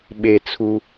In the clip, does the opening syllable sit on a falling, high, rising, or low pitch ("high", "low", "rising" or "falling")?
low